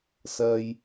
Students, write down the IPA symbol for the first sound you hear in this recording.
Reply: s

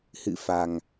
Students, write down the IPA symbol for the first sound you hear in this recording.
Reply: h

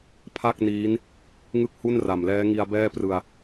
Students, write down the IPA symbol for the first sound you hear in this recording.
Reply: pʰ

